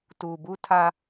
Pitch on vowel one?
low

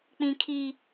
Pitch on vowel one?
high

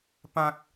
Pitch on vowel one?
high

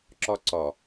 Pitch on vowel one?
high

